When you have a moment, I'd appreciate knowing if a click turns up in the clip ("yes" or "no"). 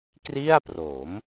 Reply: no